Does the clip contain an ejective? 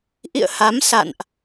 no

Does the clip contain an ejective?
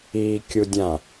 no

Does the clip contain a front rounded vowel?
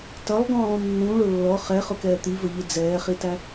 no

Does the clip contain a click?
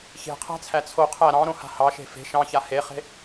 no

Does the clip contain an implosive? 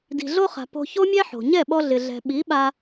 yes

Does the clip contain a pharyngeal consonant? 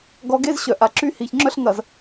no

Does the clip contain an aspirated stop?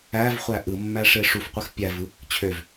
yes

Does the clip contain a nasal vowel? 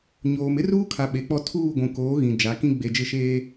yes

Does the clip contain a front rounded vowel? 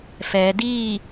no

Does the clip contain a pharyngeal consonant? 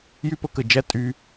no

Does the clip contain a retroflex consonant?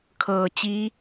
no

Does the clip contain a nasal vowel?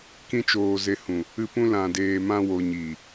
yes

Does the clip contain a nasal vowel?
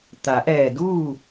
no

